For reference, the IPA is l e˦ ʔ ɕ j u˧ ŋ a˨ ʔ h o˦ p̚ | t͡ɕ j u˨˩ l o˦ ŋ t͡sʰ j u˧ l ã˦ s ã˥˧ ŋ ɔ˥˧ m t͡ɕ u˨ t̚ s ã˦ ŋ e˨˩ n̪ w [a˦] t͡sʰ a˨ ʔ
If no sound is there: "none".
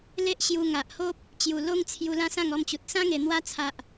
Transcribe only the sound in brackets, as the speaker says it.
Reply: a˦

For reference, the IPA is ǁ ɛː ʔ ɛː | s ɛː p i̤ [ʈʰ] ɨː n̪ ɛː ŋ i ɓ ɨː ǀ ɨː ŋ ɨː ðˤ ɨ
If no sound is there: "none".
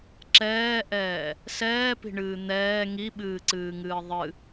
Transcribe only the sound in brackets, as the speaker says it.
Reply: ɳ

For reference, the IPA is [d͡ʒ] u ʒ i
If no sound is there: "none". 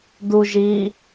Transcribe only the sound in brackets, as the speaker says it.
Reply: d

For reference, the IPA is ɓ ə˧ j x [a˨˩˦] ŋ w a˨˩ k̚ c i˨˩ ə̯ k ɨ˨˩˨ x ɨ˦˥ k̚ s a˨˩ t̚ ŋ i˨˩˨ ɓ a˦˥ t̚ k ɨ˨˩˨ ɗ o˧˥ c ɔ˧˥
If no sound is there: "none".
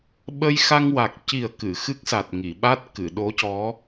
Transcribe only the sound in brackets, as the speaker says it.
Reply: a˧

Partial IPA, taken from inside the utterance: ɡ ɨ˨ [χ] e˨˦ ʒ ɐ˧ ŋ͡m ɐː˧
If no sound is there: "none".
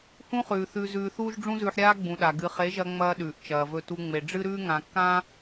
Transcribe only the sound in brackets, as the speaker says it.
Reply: χ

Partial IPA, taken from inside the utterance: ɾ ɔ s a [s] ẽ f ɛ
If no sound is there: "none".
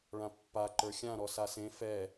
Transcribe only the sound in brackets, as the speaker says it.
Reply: s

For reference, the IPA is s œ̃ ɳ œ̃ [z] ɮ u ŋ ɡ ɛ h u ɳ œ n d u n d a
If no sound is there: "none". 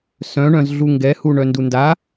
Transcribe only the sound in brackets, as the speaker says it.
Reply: z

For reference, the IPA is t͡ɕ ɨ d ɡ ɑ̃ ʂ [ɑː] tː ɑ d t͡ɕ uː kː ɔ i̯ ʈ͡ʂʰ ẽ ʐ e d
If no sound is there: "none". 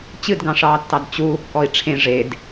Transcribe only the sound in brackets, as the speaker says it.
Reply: ɑː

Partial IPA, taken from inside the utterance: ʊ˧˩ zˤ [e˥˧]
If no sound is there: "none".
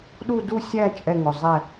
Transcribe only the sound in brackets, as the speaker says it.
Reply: ɛ˥˧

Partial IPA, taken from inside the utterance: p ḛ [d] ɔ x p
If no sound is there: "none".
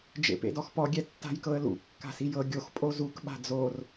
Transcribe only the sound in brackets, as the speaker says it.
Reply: d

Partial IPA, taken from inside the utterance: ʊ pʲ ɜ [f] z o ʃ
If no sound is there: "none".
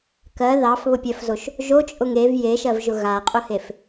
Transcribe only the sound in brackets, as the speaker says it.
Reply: f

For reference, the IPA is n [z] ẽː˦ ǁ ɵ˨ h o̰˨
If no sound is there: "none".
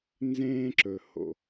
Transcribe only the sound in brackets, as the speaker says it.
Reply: z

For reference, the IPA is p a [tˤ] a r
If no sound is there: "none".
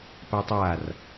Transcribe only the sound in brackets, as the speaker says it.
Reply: tˤ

